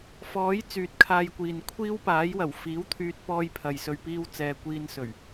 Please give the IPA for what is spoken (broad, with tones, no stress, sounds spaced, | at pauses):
f ɔː˨˥ j t͡s yː˨ t̚ kʰ aː˧ j kʷ iː˨ n kʷʰ iː˥ w p aː˨˥ j w ɐ˨˩ w f iː˨˥ w t̪ʰ yː˧ t̚ p ɔː˧ j pʰ ɐ˨ j s ɵ˧ ɥ p iː˥ w t͡s ɛː˧ kʷ iː˧ n s ɵ˨˩ ɥ